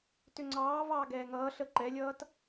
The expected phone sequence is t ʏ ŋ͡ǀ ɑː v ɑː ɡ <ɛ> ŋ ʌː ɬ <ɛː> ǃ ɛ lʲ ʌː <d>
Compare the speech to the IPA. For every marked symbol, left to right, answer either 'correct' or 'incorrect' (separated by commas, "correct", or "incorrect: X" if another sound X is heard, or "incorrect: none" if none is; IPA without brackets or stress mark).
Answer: incorrect: ɛː, incorrect: əː, incorrect: t